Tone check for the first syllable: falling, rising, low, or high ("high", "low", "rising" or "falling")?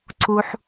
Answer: low